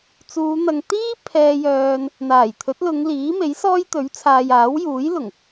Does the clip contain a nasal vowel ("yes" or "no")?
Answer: no